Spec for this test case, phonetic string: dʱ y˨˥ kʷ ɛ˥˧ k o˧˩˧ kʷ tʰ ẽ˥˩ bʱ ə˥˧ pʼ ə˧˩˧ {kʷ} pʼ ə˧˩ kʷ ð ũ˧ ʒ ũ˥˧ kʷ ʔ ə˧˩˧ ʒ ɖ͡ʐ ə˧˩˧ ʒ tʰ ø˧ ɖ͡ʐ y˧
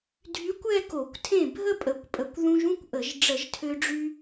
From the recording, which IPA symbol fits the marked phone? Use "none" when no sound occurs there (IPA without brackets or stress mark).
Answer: kʷ